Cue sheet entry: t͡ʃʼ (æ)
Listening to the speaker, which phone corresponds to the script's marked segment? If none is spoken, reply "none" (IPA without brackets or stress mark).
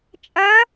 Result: ɐ